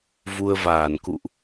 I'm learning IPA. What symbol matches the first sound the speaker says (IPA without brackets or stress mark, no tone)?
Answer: v